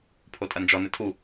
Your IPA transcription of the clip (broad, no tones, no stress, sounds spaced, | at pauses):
pʰ o tʼ ɐ n d͡ʒ ɔ n ɘ tʰ u